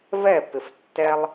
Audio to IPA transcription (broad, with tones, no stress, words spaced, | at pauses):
vɛ˥˨pɪ˧˩f tːɛ˦lˠ